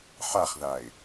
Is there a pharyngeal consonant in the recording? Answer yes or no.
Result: yes